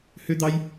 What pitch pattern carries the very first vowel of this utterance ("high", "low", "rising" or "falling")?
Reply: high